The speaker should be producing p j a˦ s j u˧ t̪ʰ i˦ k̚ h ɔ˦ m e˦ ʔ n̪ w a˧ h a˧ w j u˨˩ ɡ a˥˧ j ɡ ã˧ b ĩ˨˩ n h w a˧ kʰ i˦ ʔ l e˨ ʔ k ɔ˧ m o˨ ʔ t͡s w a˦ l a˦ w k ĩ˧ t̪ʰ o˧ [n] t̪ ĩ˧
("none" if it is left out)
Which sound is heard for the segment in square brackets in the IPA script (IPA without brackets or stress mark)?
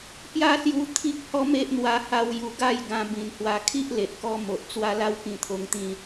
ŋ